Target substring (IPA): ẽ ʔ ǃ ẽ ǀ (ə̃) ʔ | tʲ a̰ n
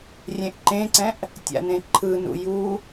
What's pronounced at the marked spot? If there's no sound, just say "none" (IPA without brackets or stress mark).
ɛ̃